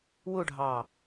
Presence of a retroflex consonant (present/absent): present